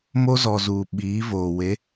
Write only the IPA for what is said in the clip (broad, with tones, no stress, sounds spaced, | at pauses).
m o˦ z ɔ˨ z uː˨ ɓ iː˨˦ v oː˨ w e˨˦